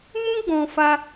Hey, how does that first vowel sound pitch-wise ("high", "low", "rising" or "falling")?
high